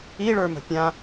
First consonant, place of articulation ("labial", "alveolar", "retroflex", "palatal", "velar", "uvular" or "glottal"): retroflex